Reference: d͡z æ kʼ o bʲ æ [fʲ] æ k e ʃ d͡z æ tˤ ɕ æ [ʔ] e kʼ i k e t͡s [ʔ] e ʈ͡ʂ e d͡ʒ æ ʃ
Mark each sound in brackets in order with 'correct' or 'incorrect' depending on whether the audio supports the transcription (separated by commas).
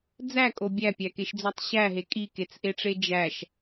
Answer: incorrect, incorrect, correct